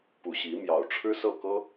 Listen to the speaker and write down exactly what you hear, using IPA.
pu˨˩ ɕi˧˥ mjɑ˨˩ʊ̯ʈ͡ʂʰɻ̩˥sɤ˥˩kɤ˥

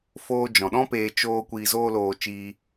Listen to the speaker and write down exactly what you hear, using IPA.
foː˧ d͡ʒɔ̃˨ɗɔ̃˦peː˧ t͡ʃoː˧ kʷiː˨zoː˧loː˨ t͡ʃiː˧

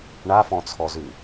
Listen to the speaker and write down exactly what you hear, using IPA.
ɳafɔ̃t͡sʰɔzʉ

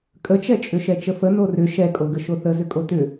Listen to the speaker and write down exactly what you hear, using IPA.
kʼət͡ʃɛt͡ʃʼʏ ʃɛt͡ʃəfə norʏ ʃɛkʼoɡə ʃoθəzʏkʼo tʏ

